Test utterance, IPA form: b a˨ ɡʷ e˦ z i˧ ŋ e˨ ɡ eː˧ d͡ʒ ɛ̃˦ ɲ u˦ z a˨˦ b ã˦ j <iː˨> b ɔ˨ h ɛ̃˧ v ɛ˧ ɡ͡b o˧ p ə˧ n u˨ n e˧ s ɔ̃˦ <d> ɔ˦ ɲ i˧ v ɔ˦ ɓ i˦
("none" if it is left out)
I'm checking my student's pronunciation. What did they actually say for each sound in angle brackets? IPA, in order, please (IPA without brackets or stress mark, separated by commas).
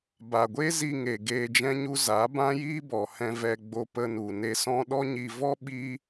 iː˦, ɗ